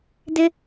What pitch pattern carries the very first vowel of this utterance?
high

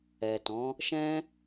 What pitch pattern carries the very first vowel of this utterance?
low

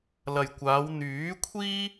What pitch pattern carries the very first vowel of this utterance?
low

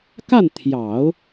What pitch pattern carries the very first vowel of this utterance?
falling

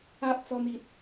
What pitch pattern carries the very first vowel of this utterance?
high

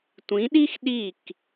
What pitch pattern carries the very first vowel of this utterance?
rising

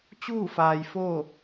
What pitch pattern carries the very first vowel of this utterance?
falling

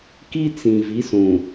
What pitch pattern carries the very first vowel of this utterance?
high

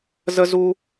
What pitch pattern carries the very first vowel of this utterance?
high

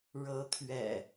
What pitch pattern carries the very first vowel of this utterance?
rising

